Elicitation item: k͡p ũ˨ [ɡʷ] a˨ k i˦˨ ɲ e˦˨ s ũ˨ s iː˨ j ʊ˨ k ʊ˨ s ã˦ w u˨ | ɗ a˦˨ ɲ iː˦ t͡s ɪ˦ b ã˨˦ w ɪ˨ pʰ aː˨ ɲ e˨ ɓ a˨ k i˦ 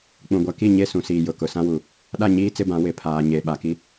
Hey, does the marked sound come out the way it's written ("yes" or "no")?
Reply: yes